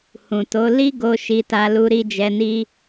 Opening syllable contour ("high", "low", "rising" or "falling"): low